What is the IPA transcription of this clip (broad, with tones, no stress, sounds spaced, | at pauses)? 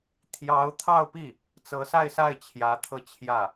t̪ʰ j ɑ˧˥ ʊ̯ t̪ʰ ɑ˥˧ ʊ̯ p i˥˩ | t͡s ɤ˧˥ s a˥˧ ɪ̯ s a˥˩ ɪ̯ t͡ɕʰ j ä˧˥ t̪ʰ ɤ˥˧ t͡ɕʰ j ä˥˩